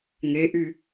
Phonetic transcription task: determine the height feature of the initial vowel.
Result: mid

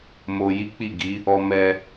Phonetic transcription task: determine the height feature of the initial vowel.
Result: mid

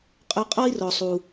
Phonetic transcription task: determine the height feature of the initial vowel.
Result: mid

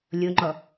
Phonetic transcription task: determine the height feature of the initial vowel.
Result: mid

